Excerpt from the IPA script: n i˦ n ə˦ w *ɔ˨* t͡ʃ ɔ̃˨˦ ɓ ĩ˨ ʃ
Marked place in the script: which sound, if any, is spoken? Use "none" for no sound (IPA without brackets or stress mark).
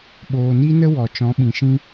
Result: ɔ˨